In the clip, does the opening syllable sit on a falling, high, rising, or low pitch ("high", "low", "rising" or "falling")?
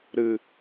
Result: low